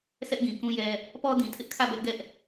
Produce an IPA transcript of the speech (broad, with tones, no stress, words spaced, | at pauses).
sʰɛ˦ʔɡĩ˨kũ˦jɛ˦ | pɔ˦dĩ˨tʰɪ˦ʔkʰä˦˨ bɛ˦ʔɡɛ˦ʔ